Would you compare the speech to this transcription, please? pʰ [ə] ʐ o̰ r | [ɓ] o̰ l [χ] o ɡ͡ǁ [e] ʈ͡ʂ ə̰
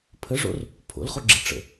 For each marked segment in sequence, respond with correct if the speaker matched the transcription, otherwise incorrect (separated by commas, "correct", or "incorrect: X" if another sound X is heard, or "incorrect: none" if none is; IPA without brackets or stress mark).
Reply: correct, incorrect: pʰ, correct, incorrect: i